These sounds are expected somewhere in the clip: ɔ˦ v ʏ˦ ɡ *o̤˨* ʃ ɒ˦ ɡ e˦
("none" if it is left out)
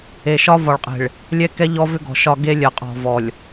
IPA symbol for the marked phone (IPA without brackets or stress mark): ɔ̤˨